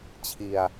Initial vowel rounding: unrounded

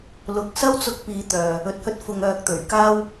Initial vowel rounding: rounded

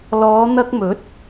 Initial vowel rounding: rounded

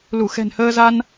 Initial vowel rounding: rounded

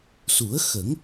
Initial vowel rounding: rounded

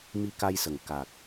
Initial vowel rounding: unrounded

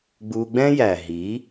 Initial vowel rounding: rounded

